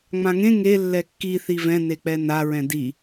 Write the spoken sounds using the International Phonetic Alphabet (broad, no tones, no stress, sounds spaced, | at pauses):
ŋ͡m ã ŋ ẽ ŋ e lː ɛ kː i θ i v ɛ̃ n e k͡p ɛ n a ɹ ɛ̃ d i